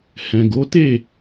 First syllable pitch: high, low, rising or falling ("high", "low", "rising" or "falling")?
low